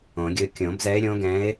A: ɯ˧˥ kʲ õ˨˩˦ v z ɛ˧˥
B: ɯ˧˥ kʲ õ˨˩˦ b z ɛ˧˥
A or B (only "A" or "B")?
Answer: B